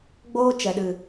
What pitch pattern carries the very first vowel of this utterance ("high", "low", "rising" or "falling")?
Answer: high